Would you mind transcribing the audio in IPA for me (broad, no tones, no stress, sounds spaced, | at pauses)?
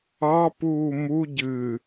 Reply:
ɑ p uː m u ɟ ɨ